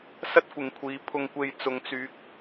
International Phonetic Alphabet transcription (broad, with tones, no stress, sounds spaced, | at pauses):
s ɐ˥ t̚ kʷ ɪ˨ ŋ kʷʰ iː˨˧ pʰ ʊ˨ ŋ kʷ e˨ j t͡s ʊ˨˧ ŋ t͡s yː˨˥ k̚